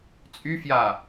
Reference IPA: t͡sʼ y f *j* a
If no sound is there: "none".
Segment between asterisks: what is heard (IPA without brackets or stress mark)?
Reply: j